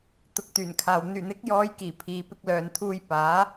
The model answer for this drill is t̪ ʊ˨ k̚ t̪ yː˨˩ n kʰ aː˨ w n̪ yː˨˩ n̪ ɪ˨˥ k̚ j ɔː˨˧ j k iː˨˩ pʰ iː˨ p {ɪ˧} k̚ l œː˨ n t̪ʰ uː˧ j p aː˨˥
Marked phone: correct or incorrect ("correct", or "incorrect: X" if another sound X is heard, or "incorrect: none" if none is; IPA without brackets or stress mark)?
correct